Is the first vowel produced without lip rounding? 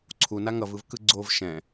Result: no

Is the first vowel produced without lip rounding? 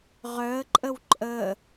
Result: no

